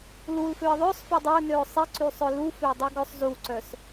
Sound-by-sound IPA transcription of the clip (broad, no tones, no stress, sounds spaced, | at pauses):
l u l f ø ə̯ ðˤ œ sˤ f o dˤ œ ʊ̯ n ø ʊ̯ sˤ i ǀ y sˤ œ l u f ø dˤ u ɡ œ sˤ z u ǀ œ s